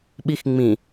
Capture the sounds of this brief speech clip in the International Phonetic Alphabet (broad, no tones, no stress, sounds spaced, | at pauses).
ɓ i x ŋ͡m ĩ